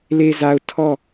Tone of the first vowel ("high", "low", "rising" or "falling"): low